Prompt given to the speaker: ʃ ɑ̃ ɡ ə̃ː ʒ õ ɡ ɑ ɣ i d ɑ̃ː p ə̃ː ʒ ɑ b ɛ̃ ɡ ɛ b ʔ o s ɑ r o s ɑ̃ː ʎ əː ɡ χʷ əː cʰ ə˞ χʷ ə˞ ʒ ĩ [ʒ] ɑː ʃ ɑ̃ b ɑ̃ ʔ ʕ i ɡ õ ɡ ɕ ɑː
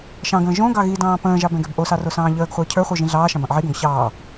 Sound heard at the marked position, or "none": ɮ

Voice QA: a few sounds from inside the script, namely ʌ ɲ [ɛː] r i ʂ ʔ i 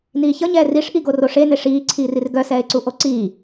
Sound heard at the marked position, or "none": ɛː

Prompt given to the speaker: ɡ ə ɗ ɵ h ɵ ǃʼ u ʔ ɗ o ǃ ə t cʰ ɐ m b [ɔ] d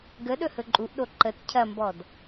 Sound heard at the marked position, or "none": ɔ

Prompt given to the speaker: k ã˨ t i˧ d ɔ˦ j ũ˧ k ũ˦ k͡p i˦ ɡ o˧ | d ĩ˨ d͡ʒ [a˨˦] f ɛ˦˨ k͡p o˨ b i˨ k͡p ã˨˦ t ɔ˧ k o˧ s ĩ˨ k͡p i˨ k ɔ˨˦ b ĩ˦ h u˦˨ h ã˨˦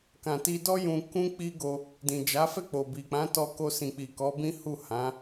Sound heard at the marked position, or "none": a˨˦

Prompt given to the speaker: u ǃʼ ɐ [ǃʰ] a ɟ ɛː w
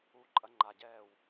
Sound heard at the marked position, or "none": ŋ͡ǃ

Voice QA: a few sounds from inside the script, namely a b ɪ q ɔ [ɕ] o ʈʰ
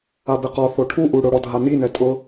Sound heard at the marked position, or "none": θ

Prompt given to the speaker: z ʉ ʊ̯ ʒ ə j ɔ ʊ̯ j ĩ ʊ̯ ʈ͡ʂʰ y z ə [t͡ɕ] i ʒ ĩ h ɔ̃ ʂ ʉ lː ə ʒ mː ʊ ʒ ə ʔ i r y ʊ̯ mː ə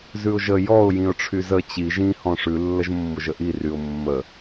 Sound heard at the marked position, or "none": t͡ɕ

